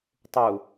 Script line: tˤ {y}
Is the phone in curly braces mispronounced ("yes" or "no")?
yes